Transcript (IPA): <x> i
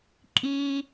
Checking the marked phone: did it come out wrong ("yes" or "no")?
yes